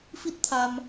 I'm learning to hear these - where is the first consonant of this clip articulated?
lips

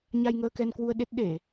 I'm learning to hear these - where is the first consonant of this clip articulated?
palate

